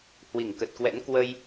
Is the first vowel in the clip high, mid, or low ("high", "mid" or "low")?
high